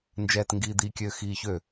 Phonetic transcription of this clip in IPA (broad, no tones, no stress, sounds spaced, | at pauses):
n d͡ʒ ɛː t ŋ ɡ iː d̪ i kʲ øː x iː ç ø